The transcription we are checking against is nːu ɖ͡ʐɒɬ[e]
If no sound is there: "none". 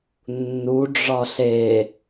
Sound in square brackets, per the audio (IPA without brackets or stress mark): e